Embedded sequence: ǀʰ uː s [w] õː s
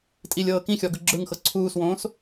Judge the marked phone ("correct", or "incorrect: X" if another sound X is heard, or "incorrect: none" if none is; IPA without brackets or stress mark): correct